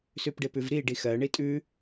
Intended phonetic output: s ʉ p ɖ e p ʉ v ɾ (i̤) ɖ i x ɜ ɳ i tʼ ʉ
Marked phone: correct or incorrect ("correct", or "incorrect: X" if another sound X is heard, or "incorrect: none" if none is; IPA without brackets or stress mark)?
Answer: incorrect: i